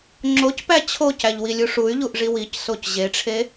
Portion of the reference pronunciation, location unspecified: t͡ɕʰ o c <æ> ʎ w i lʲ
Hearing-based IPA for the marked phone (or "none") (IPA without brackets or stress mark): æ